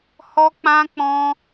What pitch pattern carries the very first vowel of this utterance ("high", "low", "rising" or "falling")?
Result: high